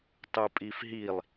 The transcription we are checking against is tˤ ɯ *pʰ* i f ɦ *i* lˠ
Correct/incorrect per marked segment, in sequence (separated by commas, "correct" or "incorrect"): incorrect, correct